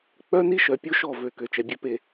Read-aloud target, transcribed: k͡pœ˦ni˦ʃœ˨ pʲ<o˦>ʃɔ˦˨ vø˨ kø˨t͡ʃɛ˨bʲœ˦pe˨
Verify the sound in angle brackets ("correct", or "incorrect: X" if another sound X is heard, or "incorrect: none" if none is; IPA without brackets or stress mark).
correct